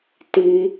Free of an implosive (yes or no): yes